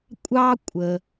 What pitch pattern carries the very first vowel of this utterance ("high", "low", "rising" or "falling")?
high